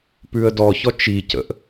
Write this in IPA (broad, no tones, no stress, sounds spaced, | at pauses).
p ʉ ə̯ d ɔ ç ɔ t͡ʃ i c ə̰ ʔ